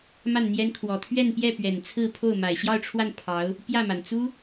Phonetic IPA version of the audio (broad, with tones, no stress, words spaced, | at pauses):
ma˥˩nn̪jɛ˥n kʰwɔ˨˩t̪ʰɥɛ˥˧npjɛ˥˩pɥɛ˨˩n t͡sʰɹ̩˥˧pʰo˥˩ʊ̯ ma˨˩ɪ̯ɕjɑ˥˧ʊ̯ʈ͡ʂʰwa˥˩n pʰɑ˧˥ʊ̯ | pjä˥˩ma˩n t͡su˥